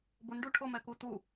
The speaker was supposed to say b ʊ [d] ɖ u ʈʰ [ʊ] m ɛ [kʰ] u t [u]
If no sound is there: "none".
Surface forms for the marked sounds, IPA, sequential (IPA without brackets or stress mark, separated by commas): n, ʊ, k, u